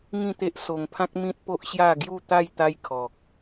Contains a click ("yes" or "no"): no